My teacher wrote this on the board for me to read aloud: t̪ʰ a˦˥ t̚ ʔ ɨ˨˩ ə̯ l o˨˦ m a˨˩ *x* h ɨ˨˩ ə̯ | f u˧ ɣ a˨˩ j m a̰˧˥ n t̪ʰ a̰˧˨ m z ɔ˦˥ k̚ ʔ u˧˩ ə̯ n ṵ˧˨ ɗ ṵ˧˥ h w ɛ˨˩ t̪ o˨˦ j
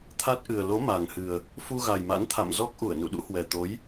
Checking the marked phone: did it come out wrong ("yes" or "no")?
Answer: yes